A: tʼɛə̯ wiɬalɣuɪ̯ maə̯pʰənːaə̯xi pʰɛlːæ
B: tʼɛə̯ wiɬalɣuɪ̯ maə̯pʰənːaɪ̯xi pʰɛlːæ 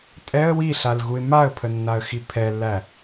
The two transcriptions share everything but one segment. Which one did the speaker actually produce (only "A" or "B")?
A